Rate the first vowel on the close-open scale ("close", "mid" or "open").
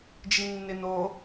close